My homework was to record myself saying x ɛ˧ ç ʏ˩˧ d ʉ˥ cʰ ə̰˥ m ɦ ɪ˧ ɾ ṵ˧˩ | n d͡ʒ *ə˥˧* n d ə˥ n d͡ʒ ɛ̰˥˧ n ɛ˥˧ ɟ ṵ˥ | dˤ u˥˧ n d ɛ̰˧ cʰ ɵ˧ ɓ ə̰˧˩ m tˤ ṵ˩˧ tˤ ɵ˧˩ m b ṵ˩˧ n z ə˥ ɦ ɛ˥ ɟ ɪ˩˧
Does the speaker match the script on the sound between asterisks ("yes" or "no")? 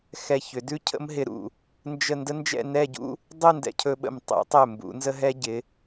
yes